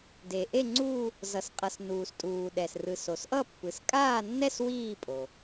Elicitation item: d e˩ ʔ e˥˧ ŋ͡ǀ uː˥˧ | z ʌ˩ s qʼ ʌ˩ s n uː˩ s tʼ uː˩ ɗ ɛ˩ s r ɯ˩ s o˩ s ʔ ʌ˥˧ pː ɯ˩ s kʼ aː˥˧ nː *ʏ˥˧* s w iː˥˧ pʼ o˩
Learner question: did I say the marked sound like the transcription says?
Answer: no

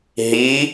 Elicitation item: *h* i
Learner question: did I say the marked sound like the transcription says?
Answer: no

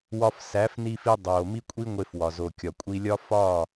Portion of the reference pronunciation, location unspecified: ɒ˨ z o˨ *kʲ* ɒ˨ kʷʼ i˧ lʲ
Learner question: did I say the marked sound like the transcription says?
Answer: yes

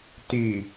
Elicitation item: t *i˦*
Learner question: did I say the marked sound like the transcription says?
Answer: no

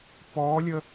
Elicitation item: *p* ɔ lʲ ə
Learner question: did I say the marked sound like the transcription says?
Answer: yes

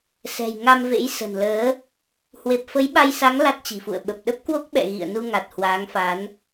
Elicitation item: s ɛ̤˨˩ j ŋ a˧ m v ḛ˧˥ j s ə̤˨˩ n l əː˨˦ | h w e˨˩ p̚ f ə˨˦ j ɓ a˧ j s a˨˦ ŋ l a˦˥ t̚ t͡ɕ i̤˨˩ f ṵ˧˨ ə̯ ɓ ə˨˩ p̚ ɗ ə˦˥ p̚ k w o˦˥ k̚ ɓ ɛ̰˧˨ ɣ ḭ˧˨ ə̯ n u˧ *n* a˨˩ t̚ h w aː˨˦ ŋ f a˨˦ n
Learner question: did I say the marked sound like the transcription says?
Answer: no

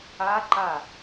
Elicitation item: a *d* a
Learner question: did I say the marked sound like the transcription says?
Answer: no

